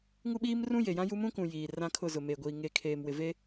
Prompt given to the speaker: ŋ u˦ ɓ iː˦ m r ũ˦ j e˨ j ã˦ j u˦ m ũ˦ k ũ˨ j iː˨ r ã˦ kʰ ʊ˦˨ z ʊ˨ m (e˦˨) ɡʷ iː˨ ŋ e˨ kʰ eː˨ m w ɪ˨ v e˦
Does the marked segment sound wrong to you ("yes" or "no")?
yes